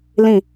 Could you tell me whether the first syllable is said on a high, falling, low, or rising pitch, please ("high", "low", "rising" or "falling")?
falling